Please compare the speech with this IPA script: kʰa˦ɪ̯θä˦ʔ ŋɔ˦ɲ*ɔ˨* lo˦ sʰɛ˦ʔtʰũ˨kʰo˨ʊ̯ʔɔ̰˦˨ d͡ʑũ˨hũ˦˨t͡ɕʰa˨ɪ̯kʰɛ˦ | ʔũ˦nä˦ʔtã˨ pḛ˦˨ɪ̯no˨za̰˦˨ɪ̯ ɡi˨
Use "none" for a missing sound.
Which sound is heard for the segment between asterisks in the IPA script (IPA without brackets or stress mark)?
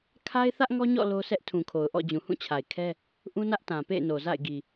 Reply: ɔ̰˦˨